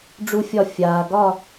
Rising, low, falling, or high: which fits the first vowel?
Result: high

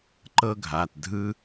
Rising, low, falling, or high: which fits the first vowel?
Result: high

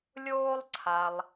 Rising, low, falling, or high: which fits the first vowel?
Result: high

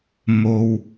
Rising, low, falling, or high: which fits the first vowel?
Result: low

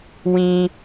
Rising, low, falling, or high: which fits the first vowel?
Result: high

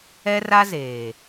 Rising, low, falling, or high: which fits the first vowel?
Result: high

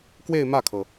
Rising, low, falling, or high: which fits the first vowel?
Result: falling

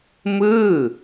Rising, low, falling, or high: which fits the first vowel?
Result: falling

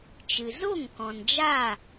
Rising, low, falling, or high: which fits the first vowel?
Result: low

